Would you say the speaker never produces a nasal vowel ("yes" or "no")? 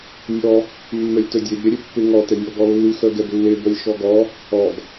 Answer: yes